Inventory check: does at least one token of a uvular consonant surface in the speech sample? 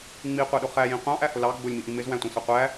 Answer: yes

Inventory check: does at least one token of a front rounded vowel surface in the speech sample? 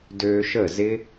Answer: yes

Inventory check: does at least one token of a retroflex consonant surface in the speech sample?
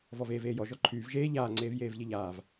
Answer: no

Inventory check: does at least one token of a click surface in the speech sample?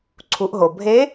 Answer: yes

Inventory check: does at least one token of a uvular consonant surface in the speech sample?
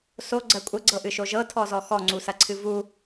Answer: no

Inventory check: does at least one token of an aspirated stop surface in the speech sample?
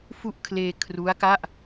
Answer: yes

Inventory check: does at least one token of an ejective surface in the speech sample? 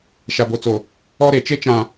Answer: no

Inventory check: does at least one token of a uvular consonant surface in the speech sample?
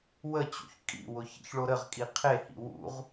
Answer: yes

